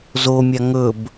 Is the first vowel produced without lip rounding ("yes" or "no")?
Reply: no